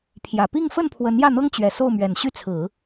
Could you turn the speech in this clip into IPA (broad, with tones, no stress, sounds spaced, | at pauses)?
pʰ j ä˨˩ p i˥˧ ŋ f ə˥˩ n pʰ w ə˧˥ n j ä˥˩ n̪ ɤ˥ ŋ t͡ɕ ɥ ɛ˨˩ s o˥˩ ʊ̯ m ɥ ɛ˨˩ n ɕ y˥˩ t͡sʰ ɹ̩˨˩˦